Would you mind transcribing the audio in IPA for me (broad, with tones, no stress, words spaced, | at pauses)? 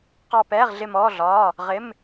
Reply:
qɑ˦˨pɛː˧˥˧ʁɮɪ˦˨mɔː˧˥˧ ɮɒː˧˥˧ | ʁɪ˧˥˧m